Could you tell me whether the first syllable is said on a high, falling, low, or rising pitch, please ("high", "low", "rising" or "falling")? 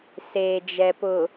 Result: low